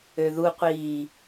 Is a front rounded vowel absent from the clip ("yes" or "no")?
no